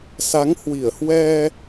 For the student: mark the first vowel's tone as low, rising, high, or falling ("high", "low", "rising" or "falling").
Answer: rising